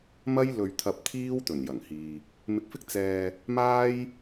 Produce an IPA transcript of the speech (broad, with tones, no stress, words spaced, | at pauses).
mɐ˥jlɵ˧ɥ t̪ʰɐ˧p̚t̪ʰiː˥wt̪ɵ˨˩n jɐ˨˩ŋhiː˨ | mɪ˧k̚fɪ˥k̚ t͡sɛː˧ | maː˥j